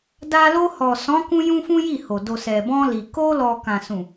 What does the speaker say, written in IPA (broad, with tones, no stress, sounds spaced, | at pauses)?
d a˧ l o˧ h ɔ˨ s ɔ̃˨˦ k ũ˧ j ũ˦ f ũ˦ j i˦˨ h o˨ d o˨ s ɛ˨ b ɔ̃˧ l i˨ k o˧ l ɔ˨ k ã˨ s ũ˨